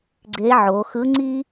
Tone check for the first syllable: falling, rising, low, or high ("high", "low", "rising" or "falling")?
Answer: rising